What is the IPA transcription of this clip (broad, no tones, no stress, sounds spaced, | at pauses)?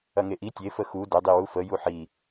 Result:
ɐ ŋ e ʔ i tʲ e f ə x u d ʊ dˤ i w u f ə j u ħ i